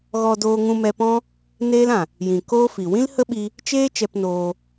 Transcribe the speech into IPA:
ɣɔ˧doː˧ ŋũ˧mɛ˧pɔ̃˦ | neː˦lã˨ | jĩ˨koː˦fi˨ wĩ˦lhə˦ɓi˧ | t͡ʃeː˦ t͡ʃɛ˧pnoː˧

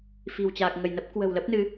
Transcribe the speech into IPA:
fi̤˨˩wt͡ɕaː˨˩k̚ŋə˧˩jnə˦˥p̚ kwə̤˨˩wlə˦˥p̚nɨ˨˦

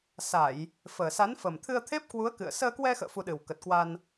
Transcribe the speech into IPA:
sa˧˩˨j | fəː˨˩sa˨˦nfə˨˩m t̪ʰɨ˧ə̯t̪ʰe˦˥p̚kwu˨˦ə̯ kɨ̰˧˨ə̯ səː˧kwɛ˧xə̰ː˧˨ fu˧ɗɨ˨˩w kə˨˩t̚kwa˧n

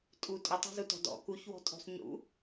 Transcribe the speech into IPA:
tʼu tʼʊtˤa̤zutɔ̤ dɔ̰ kuç wɔ̤tʼo̤sˤɲṵ

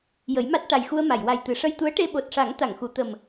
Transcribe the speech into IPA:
jə˨˩˦jma˦˥t̚ʈa˨˩jxu˧ə̯ ma˨˩˨jwa˨˩j t̪ɨ˨˩˨ʂə˧jt̪u˧˥ə̯ʈe˧ ɓo˨˩t̚ʂa˨˩˦ŋ t̪a˨˩˨ŋxu˨˩˨ t̪ə˨˩m

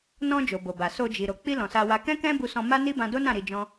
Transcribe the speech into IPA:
nɔ̃˧ d͡ʒo˨bo˨ba˨ so˧d͡ʒi˨ ɾo˨ k͡pi˧ lɔ̃˨sa˧wa˧ kɛ̃˦kɛ̃˦ bu˧sɔ̃˧ma˦ni˦ bã˧do˦nã˦˨ ɾi˧d͡ʒɔ̃˦

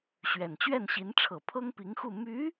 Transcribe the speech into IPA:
ɕɥɛ˨˩nt͡ɕɥɛ˥˩nɕi˧˥n ʈ͡ʂʰɤ˨˩ pʰɤ˥ŋpi˧˥ŋxu˥˩ my˧˥

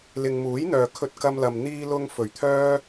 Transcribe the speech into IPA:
lɪ˨ŋmuː˨˥jn̪œː˨ kʰɵ˧t̚kɐ˧mlɐ˨m n̪iː˧lʊ˧ŋ fɵ˨˩ɥt̪ʰœː˥

